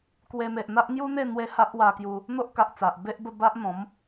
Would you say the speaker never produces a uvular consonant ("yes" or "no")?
yes